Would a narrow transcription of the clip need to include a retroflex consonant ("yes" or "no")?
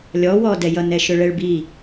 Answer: yes